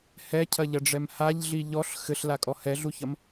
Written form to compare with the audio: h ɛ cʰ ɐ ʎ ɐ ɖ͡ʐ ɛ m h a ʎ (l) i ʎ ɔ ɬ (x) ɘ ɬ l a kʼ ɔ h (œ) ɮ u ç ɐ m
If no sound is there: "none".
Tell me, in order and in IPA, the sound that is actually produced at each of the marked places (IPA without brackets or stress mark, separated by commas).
ɮ, x, ɛ